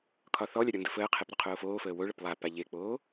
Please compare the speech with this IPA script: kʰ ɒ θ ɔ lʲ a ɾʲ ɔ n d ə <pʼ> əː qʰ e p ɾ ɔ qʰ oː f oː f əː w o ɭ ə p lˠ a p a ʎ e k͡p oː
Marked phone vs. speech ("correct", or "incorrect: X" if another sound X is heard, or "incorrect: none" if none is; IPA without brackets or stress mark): incorrect: f